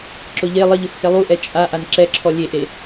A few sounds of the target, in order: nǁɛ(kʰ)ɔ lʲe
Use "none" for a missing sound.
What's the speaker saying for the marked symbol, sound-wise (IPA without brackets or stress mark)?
ǁʰ